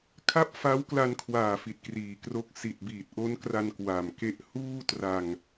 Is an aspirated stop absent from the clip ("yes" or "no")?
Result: no